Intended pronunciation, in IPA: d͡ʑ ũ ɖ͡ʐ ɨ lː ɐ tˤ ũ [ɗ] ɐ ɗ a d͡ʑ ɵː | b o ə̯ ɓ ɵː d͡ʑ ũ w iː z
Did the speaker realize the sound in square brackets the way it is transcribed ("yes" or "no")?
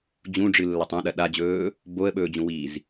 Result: yes